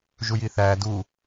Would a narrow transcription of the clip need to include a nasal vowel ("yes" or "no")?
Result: no